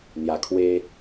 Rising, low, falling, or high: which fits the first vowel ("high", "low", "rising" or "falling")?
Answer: low